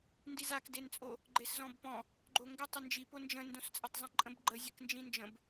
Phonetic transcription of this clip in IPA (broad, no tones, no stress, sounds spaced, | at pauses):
n d i z a k d e n t͡sʼ o | ɡ͡ǃ e s z ɔ̃ b p ɔ̃ | ɡ͡ǃ o ŋ ɡ ɘ tˤ ɘ n d͡ʒ i p o n d͡ʒ ə̃ n d õ s t͡sʼ ə tˤ zˤ ə̃ ǃʼ ə̃ b ɡ͡ǃ ə zʲ ɘ k n d͡ʒ ĩ n d͡ʒ ə̃ b